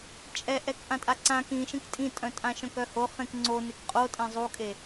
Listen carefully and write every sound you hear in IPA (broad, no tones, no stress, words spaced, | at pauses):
t͡ʃʼɛʔɛkʔã tʼaǀãk ĩʃĩk tʼĩtʼœ̃tʼã ʃœ̃kœho χẽkŋ͡ǀo nekqʼotʼẽ zˤukʼe